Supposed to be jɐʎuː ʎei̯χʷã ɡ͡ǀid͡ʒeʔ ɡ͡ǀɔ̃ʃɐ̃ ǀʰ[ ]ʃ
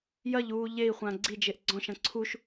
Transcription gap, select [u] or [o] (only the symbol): u